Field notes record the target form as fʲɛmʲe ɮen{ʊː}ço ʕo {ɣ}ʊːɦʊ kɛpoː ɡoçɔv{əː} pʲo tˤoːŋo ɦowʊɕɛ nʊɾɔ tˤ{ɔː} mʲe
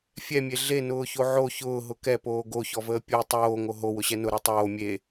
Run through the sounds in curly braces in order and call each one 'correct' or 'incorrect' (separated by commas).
correct, incorrect, correct, incorrect